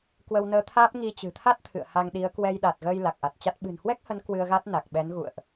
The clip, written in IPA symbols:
k w ə˧ w n əː˧ t̪ʰ aː˦˥ p̚ ŋ i˧ t͡ɕ ɨ̤˨˩ t̪ʰ a˦˥ t̚ t̪ʰ ɨ̰˧˨ ə̯ h a˧ ŋ ɗ i˨˦ ə̯ k w ɛ˧ j ɗ a˨˩ t̚ ɣ əː˧ j l a˨˩ k̚ ʔ a˨˩ t̚ t͡ɕ a˦˥ t̚ ɓ ɨ̤˨˩ n h w ɛ˦˥ k̚ h ə˨˦ n k w ɨ˧ ə̯ ɣ a˦˥ t̚ n a˨˩ k̚ ɓ ɛ˨˦ n ɣ ṵ˧˨ ə̯ ʔ

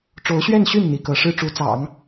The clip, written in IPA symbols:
ʈ͡ʂ o˧˥ ʊ̯ ɕ ɥ ɛ˥˧ n ɕ y˥˩ n n̪ i˧˥ k ɤ˧˥ ʂ ɻ̩˥ ʈ͡ʂ u˧˥ t͡s ɑ̰˨˩˦ ŋ

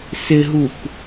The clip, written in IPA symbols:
s ɪ ɦ u k

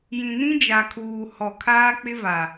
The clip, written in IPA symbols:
j ĩ˨ n ĩ˦ d͡ʒ a˨ kʰ uː˨ h ɔ˨ kʰ aː˦ k͡p ɪ˦ v a˨

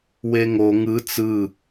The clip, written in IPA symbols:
w e ŋ o ŋ ɯ t͡s ɯ

